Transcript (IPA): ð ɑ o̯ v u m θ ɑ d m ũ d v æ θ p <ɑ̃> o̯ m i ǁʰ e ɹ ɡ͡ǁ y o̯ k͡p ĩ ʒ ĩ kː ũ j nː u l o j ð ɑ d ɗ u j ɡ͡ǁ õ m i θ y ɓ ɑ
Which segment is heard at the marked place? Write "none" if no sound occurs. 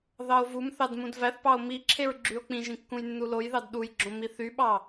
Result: ɑ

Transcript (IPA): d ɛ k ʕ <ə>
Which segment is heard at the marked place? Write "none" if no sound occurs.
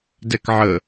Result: ə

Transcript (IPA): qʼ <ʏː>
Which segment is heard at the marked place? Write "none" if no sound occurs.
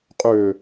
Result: ʏː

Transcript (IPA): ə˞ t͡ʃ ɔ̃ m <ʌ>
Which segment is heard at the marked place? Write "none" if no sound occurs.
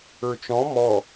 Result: ɔ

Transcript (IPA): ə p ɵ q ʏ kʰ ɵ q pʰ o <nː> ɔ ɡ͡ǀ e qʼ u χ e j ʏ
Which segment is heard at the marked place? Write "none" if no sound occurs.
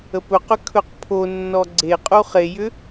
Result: nː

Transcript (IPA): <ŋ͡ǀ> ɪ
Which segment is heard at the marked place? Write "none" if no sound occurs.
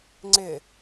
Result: ŋ͡ǀ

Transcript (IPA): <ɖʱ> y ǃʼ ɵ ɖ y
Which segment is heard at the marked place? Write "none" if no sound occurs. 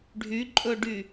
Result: ɖʱ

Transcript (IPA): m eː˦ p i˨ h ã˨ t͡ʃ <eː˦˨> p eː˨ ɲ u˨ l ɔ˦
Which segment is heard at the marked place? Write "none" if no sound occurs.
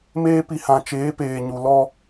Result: eː˨˦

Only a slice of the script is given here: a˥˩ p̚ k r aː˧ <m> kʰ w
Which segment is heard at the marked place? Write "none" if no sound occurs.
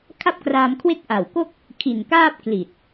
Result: m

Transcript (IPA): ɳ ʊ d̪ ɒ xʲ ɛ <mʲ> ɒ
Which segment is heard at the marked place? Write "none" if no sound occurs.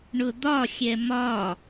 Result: m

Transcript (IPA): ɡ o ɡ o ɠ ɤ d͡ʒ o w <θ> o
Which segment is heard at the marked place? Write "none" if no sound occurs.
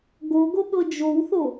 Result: θ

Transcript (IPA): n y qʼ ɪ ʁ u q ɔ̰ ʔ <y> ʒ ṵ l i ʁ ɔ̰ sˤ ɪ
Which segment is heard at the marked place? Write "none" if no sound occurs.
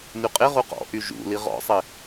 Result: y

